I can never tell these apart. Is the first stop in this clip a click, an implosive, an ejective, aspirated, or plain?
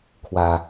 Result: aspirated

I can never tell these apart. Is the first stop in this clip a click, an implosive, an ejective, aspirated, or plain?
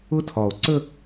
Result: aspirated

